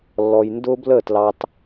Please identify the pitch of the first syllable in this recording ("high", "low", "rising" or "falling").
low